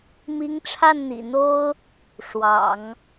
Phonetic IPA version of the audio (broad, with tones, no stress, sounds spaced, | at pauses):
m i˧˥ ŋ ʈ͡ʂʰ a˥˩ n n̪ ḭ˨˩ n̪ o˥ ʊ̯ | ʂ w ɑ̰˨˩˦ ŋ